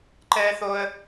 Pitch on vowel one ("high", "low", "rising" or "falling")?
high